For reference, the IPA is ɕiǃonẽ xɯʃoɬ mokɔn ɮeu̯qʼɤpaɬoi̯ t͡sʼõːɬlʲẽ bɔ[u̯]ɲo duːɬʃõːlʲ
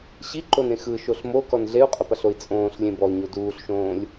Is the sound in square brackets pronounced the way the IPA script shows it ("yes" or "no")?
yes